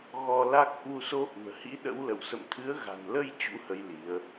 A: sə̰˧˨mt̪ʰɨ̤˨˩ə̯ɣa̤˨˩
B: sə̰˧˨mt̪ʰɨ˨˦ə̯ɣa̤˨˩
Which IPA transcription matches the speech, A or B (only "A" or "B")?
B